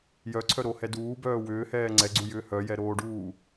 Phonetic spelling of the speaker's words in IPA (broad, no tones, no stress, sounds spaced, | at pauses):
j œ ǀʰ œ ɾ o h ɛ d uː b œː w ʏː h ɛː ŋ͡ǀ ɛ ɡ͡ǀ u j ʏː h œ j ɛ ɾ oː ɖ uː